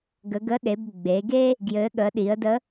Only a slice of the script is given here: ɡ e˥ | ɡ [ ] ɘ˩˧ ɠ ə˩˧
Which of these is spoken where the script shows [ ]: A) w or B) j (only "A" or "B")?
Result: B